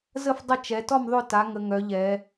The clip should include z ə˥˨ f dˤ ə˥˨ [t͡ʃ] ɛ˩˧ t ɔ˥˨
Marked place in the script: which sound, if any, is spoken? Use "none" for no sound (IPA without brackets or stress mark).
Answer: t͡ʃ